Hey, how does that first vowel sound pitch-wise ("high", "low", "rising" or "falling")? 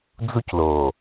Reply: high